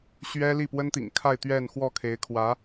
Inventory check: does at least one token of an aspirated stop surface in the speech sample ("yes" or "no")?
yes